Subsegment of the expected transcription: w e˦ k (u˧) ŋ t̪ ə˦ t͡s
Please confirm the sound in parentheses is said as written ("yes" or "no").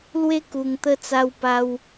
yes